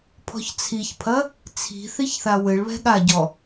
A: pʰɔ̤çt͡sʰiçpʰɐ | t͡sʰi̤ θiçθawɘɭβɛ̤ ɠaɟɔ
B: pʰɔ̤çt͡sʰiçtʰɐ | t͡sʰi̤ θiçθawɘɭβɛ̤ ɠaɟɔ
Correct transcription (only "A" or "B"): A